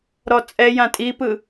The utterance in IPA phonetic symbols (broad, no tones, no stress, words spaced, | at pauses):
ɾɔt͡sʼɛ jãtʼipɯ